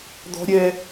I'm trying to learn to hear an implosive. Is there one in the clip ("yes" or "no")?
no